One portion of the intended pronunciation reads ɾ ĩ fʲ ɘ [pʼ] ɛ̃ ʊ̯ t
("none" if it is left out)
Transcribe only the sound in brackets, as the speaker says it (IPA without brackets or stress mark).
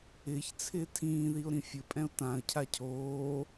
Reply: pʼ